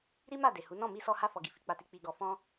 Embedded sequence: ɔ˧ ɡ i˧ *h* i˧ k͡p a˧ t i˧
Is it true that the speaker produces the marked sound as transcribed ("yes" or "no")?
no